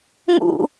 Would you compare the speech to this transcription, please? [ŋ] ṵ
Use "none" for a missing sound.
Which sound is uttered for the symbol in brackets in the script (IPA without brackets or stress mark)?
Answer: ŋ